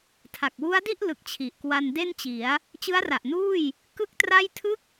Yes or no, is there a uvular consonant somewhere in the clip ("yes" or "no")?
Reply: no